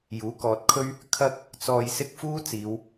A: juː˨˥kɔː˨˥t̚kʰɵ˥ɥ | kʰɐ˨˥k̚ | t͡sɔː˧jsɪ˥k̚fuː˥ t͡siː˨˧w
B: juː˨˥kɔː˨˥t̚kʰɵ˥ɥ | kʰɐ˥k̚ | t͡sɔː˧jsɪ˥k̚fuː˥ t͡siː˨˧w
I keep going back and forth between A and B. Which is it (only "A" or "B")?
B